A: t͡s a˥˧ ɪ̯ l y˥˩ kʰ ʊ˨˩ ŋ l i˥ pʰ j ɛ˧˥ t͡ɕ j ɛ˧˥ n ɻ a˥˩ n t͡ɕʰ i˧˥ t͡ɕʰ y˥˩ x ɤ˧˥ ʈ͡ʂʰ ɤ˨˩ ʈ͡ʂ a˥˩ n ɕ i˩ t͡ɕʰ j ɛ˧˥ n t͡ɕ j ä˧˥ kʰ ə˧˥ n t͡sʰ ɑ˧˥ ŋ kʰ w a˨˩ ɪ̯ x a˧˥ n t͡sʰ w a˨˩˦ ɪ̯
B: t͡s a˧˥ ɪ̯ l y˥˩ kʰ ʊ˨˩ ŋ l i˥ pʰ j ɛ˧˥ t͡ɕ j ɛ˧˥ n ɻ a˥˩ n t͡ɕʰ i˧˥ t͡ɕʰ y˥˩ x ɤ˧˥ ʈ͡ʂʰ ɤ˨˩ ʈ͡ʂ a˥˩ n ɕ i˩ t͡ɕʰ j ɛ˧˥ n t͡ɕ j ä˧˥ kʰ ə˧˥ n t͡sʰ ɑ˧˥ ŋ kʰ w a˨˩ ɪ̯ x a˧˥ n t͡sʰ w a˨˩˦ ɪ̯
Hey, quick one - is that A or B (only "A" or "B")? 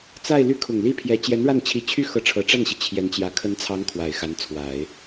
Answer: A